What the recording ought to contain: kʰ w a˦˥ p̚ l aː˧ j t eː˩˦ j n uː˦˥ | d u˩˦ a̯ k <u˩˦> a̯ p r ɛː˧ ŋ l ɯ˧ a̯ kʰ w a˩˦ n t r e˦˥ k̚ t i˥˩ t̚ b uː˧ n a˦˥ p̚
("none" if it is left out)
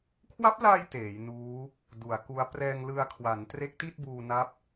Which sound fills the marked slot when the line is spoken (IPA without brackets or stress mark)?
u˦˥